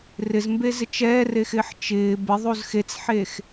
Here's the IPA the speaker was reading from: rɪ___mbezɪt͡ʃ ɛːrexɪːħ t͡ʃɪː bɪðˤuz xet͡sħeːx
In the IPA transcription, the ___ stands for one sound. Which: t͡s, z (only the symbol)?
z